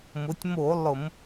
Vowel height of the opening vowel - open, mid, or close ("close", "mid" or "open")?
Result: close